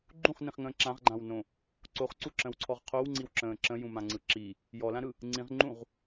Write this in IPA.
ɡ͡ǃũχnĩχŋə̃ː ǁãʁɡ͡ǃãwnõ | ǀoχǀuǁə̃wǀʰɔʁ qʰowŋ͡ǀiwǁə̃ː ǁə̃jũmãŋ͡ǀɯ ǁi | jɔlãɾɯ | ŋ͡ǀĩʁŋ͡ǃũʁ

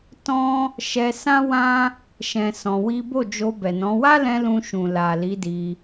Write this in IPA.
tɔ̃˦ | ʃɛ˧ sã˦wã˦ | ʃɛ̃˨ sɔ̃˧wi˦ bo˦˨d͡ʒo˧bɛ˨nɔ̃˨˦ wa˦lɛ̃˧ lũ˧ ʃũ˨la˨ li˨˦di˧

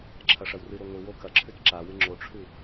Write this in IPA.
ǁʰɐʂɐwrɨɾo ŋʷɨwo kɐǁʰʉt ǁawɨ ŋ͡ǁoʈ͡ʂʰʉ

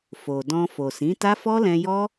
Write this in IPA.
fo˨dɔ̃˧ fo˨sĩ˨˦ta˦ fɔ˦lɛ̃˧jɔ˦

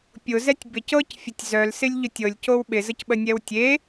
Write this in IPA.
pʲʊzɛtʲ bɪc ɤcfʲətʲ zœlsɪlʲʎʊ tʲɤlʲcow ɓɪzəcɓənʲɛw tʲe

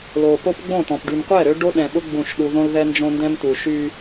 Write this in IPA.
lo˨po˦pɡ͡bõ˦˨ t̪ɔ̃˨pɖy˨mqʷɛ˦˨ɾø˦ ɖo˦ɗɛ̃˨ɓʊ˦ ɡ͡bũ˦˨ʃɗu˦ ðõ˦lðɛ˦nd͡ʒõ˦ndɛ̃˦m tu˨ʃy˦

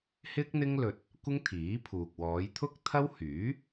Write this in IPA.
hɪ˥k̚n̪ɪ˥ŋlɵ˧t̚ | kʷɪ˥ŋt̪ʰiː˨˥pʰuː˨k̚ wɔː˨˧jt̪ʰʊ˥k̚ t̪ʰɐ˥w hyː˨˥

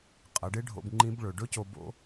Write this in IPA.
qʼɐ˩˧ɖe˥ɖʱo̰˧b ŋ͡ǃĩ˧˥bɭɵ˩ ɖɵ˥co˧ bo̰˥

